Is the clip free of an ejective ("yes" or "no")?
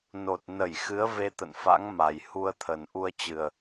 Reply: yes